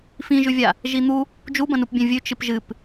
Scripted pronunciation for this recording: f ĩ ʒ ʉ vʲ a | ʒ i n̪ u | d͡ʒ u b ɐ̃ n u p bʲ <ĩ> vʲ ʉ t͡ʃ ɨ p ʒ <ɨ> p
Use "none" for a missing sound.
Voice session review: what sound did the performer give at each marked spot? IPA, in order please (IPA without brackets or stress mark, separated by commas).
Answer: ẽ, ɨ